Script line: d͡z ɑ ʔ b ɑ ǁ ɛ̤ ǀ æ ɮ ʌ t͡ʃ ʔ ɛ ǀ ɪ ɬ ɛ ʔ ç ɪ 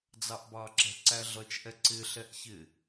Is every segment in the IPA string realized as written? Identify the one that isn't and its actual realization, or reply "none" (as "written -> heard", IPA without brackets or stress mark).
none